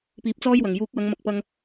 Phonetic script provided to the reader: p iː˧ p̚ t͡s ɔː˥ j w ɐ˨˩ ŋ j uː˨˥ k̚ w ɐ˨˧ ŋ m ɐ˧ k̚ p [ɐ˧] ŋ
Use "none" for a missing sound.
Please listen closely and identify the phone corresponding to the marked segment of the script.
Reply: ɐ˧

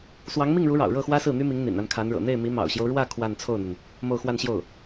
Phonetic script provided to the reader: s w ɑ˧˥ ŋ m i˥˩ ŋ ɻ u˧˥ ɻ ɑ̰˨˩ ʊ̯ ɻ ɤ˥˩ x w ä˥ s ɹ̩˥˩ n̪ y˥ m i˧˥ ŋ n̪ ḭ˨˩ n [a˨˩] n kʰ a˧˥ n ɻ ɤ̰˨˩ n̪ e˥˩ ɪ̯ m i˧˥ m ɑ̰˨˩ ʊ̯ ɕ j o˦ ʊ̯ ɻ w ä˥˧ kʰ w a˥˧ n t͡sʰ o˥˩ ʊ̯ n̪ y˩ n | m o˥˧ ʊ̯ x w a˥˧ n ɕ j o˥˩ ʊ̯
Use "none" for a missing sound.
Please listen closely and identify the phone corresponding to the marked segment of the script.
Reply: a˥˩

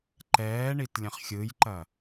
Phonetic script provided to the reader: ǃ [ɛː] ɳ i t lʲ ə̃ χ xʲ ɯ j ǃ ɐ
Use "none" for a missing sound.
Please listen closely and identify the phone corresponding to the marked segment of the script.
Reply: ɛː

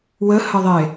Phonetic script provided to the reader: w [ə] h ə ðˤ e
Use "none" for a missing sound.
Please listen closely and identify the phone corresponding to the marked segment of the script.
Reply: ə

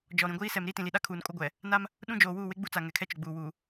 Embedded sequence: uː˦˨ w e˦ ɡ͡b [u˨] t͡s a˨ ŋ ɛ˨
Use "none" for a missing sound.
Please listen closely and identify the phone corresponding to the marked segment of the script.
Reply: u˦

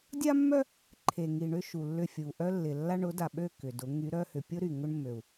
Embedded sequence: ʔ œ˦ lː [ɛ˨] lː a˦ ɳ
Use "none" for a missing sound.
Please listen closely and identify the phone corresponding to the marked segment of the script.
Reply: ɪ˨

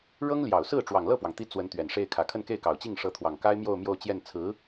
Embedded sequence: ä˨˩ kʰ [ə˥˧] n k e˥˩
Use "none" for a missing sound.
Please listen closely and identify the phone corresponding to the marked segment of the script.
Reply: ə˥˧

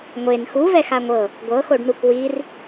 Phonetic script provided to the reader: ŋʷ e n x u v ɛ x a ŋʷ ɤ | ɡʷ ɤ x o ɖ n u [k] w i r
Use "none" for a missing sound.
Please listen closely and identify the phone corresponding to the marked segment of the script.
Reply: k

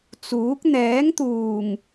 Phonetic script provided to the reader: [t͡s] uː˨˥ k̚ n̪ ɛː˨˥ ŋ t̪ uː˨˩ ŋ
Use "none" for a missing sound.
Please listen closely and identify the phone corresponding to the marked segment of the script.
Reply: t͡s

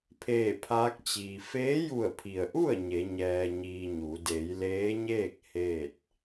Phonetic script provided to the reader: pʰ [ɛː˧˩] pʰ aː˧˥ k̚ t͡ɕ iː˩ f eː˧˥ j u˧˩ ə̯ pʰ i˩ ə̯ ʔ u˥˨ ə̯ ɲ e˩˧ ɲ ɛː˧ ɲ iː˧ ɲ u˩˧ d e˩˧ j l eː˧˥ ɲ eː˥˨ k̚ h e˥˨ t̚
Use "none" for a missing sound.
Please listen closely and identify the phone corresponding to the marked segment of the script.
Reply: eː˧˩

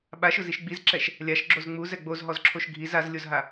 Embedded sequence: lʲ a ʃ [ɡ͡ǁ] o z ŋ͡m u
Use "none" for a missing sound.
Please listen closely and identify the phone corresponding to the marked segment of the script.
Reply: ɡ͡ǁ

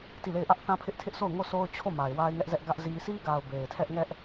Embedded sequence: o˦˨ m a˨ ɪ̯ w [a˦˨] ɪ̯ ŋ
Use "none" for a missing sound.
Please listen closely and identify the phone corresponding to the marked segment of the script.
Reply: a˦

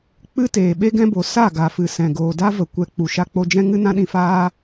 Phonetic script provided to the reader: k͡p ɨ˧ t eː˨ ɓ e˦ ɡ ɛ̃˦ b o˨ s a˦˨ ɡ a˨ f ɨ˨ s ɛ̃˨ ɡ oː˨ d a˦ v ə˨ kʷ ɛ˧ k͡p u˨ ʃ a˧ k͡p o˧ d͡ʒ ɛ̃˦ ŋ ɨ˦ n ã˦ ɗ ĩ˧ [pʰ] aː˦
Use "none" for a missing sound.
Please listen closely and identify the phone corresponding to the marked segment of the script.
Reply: f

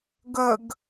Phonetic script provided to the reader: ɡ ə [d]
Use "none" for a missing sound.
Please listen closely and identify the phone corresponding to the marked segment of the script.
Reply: ɡ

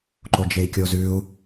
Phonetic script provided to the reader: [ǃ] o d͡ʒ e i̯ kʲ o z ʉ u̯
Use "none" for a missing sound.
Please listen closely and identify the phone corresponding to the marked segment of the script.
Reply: ǃ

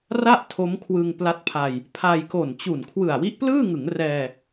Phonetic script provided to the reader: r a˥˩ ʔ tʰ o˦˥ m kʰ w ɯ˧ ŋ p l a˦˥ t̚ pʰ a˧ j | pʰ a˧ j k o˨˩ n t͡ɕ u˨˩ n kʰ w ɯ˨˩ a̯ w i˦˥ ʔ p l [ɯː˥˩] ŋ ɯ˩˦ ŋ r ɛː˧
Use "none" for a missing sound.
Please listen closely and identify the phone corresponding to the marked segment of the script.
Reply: ɯː˥˩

